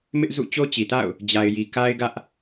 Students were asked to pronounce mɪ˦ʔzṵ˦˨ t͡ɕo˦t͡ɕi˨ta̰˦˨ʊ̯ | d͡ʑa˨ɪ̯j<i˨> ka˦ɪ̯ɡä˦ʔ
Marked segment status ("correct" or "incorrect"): correct